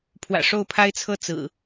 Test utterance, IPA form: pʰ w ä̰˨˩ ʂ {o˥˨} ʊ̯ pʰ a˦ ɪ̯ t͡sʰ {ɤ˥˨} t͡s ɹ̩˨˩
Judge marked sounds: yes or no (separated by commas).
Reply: yes, yes